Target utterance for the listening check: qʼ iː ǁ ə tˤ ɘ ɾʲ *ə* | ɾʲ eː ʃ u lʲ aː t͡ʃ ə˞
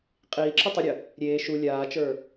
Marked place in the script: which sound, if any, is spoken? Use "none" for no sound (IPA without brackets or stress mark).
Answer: ə